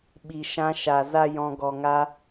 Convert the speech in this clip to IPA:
ɓ i˨ ʃ ã˧ ʃ a˨ z a˦ j ɔ̃˧ ɡ ɔ˨ ŋ a˧

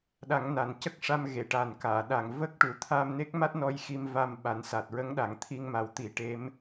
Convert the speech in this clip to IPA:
ɗ a˨˩˦ ŋ n a˨˩ n c ə˦˥ k̚ ʂ a˧ m ɣ e˨˩˨ ʈ a˨˩ n k aː˨˩˨ ɗ a˨˩ ŋ v ə˦˥ k̚ ʈ u˨˩ t̪ʰ aː˧ m n e˦˥ k̚ m a˦˥ t̚ n ɔ˧ j x i˧ m v a˧ m ɓ a˨˩˦ n s a˨˩ t̚ ɹ ə˧˥ ŋ ɗ a˨˩ ŋ t̪ʰ i˧ ŋ m a˨˩˦ w t̪ i˨˩˦ ʈ e˧˥ m

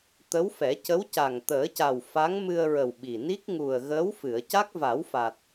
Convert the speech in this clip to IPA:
t̪ ə˧˥ w f ɛ˨˩˦ c ə˧˥ w c a˨˩ ŋ t̪ əː˨˩˦ c a˨˩ w f a˧˥ ŋ m ɨ˧ ə̯ ɹ ə˨˩ w ɓ i˨˩ n i˦˥ k̚ ŋ u˨˩ ə̯ ɣ əː˧˥ w f ɨ˨˩˨ ə̯ c a˦˥ k̚ v a˨˩˦ w f a˨˩ t̚

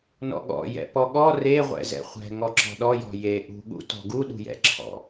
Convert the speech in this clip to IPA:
n ɔ̰ ɠ ɔ̰ j ɛ̰ p ɔ ɠ ɔ r e ʁʷ ɛ̰ z ɛ̰ χʷ ɛ̤ ŋ ɔ ǁ ɔ̤ ɗ ɔ j ɔ̤ j e ʔ ṳ ɠ ṵ t ɔ̤ ɡ u ɗ ṳ j ɛ̰ ǁʰ ɔ̰

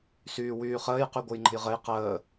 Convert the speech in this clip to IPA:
s yː w yː χ əː j q y ɡʷ ɘ j ŋ͡ǃ ə̤ j ʁ ɘ j q əː

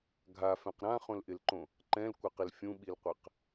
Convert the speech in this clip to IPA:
ɡʱ a f ɛ̃ q ɾ ã χ õ l ʔ ɪ l ǃ õ | ǃ ɛ̃ l kʷ a q ɪ l fʲ ũ ɓ i l qʷ ɛ q

